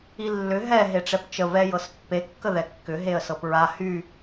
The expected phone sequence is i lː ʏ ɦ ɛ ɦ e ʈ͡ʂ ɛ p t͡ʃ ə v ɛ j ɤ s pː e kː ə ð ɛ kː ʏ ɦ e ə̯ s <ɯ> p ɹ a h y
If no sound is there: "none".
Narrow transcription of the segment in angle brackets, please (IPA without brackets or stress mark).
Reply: ɤ